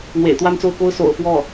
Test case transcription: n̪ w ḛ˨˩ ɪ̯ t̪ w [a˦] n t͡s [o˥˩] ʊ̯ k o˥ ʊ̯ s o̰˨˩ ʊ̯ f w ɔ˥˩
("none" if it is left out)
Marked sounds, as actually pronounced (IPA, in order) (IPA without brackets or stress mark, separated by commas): a˥˧, o˥˩